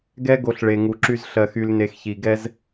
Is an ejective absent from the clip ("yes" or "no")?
yes